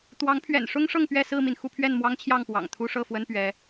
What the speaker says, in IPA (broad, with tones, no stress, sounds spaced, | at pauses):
t̪ w ɑ˨˦ ŋ pʰ ɥ ɛ̰˨˩ n ʂ ʊ˦ ŋ ʂ ɤ˥˨ ŋ p ɥ ɛ˥˨ s ɹ̩˥˨ m i˩ n x u˥˨ pʰ ɥ ɛ˥˨ n m w ɑ˦ ŋ t͡ɕʰ j ɑ˥˨ ŋ p w ɑ̰˨˩ ŋ t̪ʰ u˦ ʂ ɤ˥˨ f w ə˦ n p ɥ ɛ˨˦